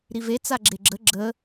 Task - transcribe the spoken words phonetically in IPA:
ɾivet͡sa ɡ͡ǁeɡ͡ǁə ɡ͡ǁə

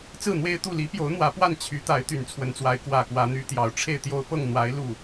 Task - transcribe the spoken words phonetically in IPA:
t͡sɹ̩˥˩n̪we˥ɪ̯t̪u˥˩ li˧˥pjo˧˥ʊ̯ n̪wä˧˥pwa˥˩n t͡ɕʰy˧˥t̪a˧˥ɪ̯ t̪y˨˩nt͡sʰwə˧˥nt͡swa˧˥ɪ̯ kwä˨˩ kwä˧˥n̪y˧˥t̪jɑ˨˩ʊ̯ ʈ͡ʂʰe˥˩ɪ̯t̪jo˥ʊ̯ pɤ˥˩ŋn̪wa˧˥ɪ̯ lu˥˩

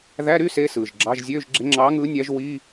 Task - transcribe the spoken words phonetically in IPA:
ðæ˧˥˧ɾy˧˥˧ se˧˥˧sɯː˩ʒɡ͡ǁɑ˧˥˧ʒ zʲøː˧˥˧ʒɡ͡ǁe˨˥ŋ͡ǁɑː˨˥ŋɯː˨˥ nʲæ˨˥ʒwiː˧˥˧

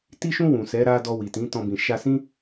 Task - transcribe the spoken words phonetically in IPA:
ti˧ʃũ˧ wũ˨sɛ˨˦ ɾa˧ dɔ˧wi˨tĩ˨˦ tɔ̃˧bĩ˨ ʃa˧sĩ˦

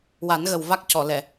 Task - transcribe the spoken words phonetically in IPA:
wa˨˩˦nɣə˨˩w va˦˥k̚cɔ˨˩˨ lɛ˨˩˨

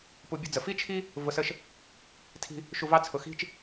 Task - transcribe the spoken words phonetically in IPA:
pu˧bʲʊ˦d͡zə˨ fi˦t͡ʃʰi˦ | vʊ˧sə˦ʃ | tʰi̤˦ | ʃu˧vɑ˦ t͡sʰʊ˨xi̤˦t͡ʃ

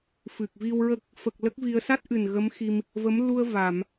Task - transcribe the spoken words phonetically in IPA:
fɨ˨˩k̚vi˧wɹə˦˥k̚ | fə˨˩k̚ lə˦˥k̚vi˧ə̯ sa˦˥t̚ʔɨ˨˩n ɣə˧˥mxi˧m | və˧˥m lu˧ə̯va˨˩˨m

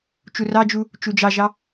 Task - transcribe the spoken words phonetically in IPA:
t͡ʃurɑd͡ʒu | t͡ʃud͡ʒɑʒɑ

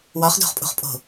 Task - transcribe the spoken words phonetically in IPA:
wɒχdo̤χpʼṳχpʼo̤

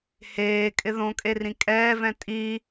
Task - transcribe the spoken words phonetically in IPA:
heːkʼɪ ðõkʼe rĩkʼɛːvɛ̃ tʼi

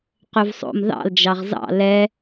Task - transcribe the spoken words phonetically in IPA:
qøvsˤo̰m ðɑ̰l d͡ʒɑʁzɑ̰ lɛ

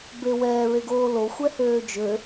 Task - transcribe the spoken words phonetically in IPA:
bewɛː ɹeɡoːlo xʷɛhøːd͡ʒø

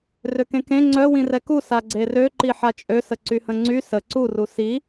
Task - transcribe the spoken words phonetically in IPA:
røkẽkẽ ŋ͡ǀœ wĩrɛku saɡ͡ǀerø ǃiħat͡ʃʼø səǀyhə̃ŋ͡ǀy sə ǀu rusi

